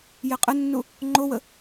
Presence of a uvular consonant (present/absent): present